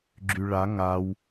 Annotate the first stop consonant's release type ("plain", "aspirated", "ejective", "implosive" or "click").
click